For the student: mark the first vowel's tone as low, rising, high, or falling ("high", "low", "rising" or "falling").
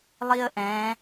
high